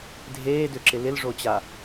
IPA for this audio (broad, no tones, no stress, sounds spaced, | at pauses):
dʱ eː d ʏ ǁ ɪ l ɪ l ʐ o t͡ɕ a